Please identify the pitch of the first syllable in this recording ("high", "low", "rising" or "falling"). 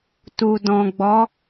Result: low